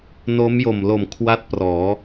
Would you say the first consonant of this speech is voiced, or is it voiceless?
voiced